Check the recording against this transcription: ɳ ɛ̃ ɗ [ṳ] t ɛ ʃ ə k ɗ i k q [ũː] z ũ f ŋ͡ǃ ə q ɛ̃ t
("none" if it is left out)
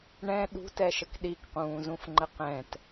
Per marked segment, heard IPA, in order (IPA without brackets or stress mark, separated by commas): ṳ, ũː